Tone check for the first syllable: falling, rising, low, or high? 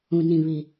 low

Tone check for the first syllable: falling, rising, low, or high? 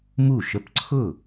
falling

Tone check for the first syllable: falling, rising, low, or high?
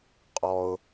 high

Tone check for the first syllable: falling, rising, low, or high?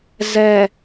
low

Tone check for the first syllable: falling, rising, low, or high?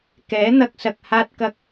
rising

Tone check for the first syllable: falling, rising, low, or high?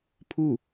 falling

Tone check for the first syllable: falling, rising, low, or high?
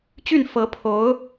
falling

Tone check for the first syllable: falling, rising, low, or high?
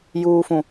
low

